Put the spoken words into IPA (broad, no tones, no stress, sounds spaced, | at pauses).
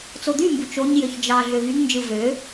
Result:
t͡s o d̪ y m b u t͡ʃ o ɲ j ø ç d͡ʒ ɑ ɮ ø v y ŋ n d͡ʒ ɯ v ø